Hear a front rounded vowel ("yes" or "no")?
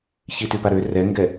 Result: yes